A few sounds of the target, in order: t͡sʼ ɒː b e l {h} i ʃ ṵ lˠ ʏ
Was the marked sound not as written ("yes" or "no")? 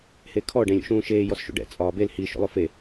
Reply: no